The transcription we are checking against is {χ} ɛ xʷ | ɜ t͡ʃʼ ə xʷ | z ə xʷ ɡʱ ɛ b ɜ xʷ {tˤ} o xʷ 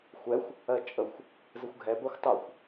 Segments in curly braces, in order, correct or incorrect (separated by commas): incorrect, correct